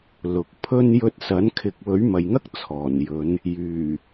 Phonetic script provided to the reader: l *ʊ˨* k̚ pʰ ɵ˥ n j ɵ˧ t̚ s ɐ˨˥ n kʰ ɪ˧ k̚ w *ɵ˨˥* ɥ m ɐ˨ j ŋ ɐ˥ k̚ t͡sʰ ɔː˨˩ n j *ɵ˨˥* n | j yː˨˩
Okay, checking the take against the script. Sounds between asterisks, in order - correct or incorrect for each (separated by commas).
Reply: correct, correct, incorrect